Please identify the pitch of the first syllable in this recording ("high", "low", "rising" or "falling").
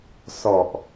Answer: low